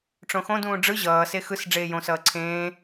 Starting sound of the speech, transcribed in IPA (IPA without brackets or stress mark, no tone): ʈ͡ʂ